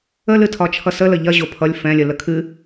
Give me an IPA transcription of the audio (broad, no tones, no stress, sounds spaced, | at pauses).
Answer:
ə l ɨ tʰ ɒ t͡ʃʰ ʌ s ə l ə ʎ ɐ ʑ o pʰ ʌ lʲ f ɛ̃ lʲ ə l ə kʰ ɨ